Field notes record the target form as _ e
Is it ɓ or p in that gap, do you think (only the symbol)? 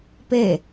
p